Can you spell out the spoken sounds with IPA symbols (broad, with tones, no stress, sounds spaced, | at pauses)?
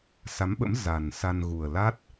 s a˨˦ m ɓ ə̰˧˥ m z a˨˩ n s a˧ n ɣ u˨˩ ə̯ l a˦˥ t̚